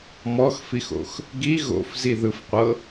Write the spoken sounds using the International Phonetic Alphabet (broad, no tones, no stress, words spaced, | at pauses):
mɔxfixo̰x | ɡi ɣo̰fziðɯfqʷɤ